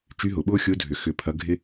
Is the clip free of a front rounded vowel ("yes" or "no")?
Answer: no